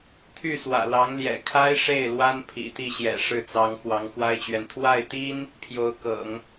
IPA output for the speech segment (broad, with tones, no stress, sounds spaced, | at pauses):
t̪ʰ y˥˩ s w ä̰˨˩ l ɑ˧˥ ŋ l j ɛ̰˨˩ kʰ a˥ ɪ̯ ʂ e˥˩ ɪ̯ l w a˥ n pʰ ḭ˨˩ t̪ i˥˩ ɕ j ɛ̰˨˩ ʂ ɻ̩˥˩ t͡s ɑ˧˥ ŋ x w ɑ˧˥ ŋ x w a˥ ɪ̯ t͡ɕ ɥ ɛ˨ n t̪ʰ w a˥˩ ɪ̯ t̪ i˥ n | pʰ j o˧˥ ʊ̯ k ɤ̰˨˩˦ ŋ